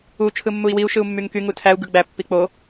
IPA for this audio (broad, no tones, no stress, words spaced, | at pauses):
u t͡ʃʰɯmːui̯wiu̯ ʃɯu̯mːyŋky ŋutʰæu̯ ɡɯɡ͡bæ pːik͡po